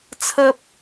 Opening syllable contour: high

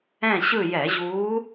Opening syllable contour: falling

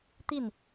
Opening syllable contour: falling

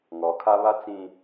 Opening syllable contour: rising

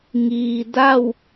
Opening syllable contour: low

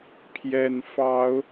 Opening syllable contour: low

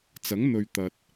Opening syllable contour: rising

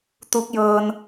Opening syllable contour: rising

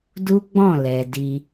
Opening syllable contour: high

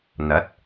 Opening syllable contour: rising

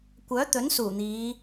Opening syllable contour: rising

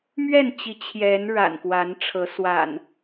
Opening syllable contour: falling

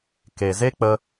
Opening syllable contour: low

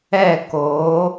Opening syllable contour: falling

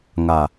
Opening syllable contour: low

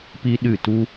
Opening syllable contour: high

